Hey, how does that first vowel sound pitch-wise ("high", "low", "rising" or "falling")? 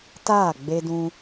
falling